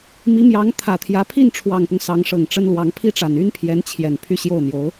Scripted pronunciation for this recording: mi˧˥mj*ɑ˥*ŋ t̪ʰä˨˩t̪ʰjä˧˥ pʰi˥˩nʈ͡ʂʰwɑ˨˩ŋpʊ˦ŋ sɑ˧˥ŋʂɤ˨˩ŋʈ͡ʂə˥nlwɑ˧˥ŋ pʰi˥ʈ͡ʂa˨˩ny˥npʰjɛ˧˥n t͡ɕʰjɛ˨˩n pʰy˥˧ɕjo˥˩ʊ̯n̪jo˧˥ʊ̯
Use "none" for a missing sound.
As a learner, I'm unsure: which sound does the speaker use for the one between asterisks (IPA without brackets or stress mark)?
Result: ɑ˧˥